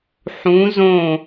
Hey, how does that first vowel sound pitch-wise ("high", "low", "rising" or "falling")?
rising